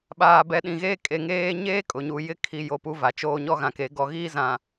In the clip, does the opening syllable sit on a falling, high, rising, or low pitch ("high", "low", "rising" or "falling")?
low